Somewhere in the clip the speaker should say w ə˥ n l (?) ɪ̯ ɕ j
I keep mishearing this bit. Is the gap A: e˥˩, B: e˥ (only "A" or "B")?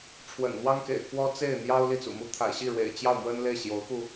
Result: A